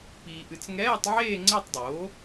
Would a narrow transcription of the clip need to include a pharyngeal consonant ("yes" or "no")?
yes